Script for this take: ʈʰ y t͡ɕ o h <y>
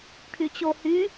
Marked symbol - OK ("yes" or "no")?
yes